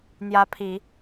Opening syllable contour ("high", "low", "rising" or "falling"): rising